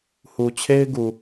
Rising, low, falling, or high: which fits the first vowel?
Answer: low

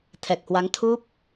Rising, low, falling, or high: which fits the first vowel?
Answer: low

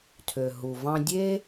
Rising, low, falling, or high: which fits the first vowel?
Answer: low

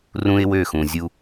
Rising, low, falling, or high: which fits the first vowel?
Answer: high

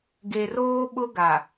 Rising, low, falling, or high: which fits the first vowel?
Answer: low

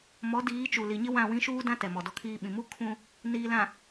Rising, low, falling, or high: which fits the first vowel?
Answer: rising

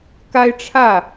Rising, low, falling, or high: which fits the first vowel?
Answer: high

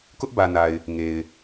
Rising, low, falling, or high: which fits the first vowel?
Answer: high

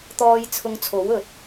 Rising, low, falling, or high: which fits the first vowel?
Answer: high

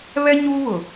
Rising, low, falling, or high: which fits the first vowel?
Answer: high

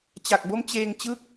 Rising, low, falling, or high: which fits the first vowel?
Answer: low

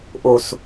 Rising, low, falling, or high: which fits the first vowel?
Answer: low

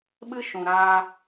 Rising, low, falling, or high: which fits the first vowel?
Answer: high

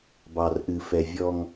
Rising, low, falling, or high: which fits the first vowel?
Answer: low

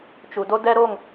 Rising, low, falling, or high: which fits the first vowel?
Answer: low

